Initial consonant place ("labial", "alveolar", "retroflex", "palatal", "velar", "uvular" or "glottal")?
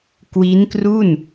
velar